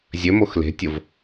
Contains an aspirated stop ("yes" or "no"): no